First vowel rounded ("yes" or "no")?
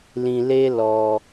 no